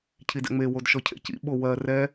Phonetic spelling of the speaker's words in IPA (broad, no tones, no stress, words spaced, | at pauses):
cʰidɛ̰ŋ͡me wodʃɔcʰḛcḭ ɓowɜ rɛ